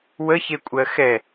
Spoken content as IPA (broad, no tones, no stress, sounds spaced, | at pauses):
w ə ç e kʷʼ ɜ x ɛ